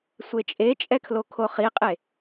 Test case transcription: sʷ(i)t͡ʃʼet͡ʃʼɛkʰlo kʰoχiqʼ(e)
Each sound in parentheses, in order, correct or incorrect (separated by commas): incorrect, correct